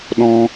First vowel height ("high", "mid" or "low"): mid